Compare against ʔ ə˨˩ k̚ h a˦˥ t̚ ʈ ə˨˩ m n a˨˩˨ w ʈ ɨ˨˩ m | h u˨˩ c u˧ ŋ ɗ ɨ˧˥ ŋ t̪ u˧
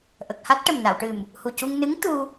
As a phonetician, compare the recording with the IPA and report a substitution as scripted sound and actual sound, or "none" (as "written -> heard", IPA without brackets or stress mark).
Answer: ɗ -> n